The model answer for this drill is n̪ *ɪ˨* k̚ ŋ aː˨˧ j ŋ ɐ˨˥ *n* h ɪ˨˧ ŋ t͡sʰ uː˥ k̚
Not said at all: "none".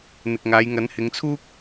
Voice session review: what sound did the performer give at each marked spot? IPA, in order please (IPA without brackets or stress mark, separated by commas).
ɪ˨, n